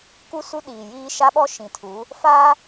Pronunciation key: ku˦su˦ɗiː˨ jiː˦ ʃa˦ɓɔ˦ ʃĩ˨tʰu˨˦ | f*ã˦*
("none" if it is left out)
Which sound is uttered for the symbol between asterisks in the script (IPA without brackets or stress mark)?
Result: a˦